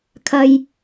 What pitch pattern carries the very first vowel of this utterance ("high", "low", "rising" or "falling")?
low